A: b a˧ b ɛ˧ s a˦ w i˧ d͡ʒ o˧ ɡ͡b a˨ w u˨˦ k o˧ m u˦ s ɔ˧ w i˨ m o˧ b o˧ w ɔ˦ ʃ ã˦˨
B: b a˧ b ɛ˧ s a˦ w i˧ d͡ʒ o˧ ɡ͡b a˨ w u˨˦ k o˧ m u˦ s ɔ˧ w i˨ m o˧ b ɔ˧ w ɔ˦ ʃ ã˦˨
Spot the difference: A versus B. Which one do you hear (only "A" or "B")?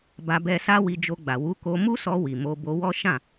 A